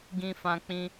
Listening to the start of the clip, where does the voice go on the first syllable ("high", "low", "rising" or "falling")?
high